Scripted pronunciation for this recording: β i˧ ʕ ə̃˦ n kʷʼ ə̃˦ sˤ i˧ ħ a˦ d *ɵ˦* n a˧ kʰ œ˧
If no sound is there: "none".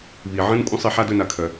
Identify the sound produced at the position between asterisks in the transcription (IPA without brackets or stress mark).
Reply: ɵ˦